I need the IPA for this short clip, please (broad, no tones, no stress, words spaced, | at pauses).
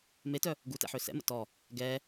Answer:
metœ | ɡutɛ̰ ħøsɛ̰mə̰ tɔ | ɡɛ